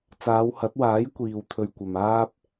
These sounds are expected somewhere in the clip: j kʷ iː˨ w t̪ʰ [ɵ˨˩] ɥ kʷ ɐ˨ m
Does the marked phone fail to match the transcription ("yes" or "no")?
yes